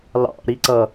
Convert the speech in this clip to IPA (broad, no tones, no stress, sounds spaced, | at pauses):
l ɑ̰ ɾ i ǀ ʌ